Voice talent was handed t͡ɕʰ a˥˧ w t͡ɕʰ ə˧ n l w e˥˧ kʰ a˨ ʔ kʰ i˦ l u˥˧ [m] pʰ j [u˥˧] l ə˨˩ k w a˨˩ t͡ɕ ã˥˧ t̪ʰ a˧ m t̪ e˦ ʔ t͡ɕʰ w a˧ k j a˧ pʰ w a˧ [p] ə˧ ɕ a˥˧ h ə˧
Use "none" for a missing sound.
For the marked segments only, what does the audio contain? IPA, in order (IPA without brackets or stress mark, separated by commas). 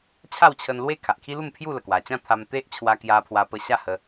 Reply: m, u˥˧, p